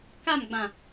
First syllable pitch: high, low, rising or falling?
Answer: falling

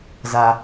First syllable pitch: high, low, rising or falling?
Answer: high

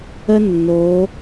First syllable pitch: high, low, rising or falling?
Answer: high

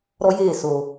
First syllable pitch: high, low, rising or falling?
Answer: high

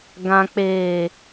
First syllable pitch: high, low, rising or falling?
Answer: low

